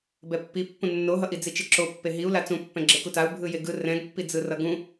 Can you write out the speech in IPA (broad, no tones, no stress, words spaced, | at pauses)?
bɛpːi pːũnːoɦʌʔi d͡zit͡ʃeǁo pːeɦiu̯ lat͡sũpːɛ̃ ɡ͡ǁekutau̯ bʱɯjeɡɯ rɛ̃ɡpːid͡zɯrʌ ɡũ